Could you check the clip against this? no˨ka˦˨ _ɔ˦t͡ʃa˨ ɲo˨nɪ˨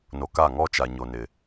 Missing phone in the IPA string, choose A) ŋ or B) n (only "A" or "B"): A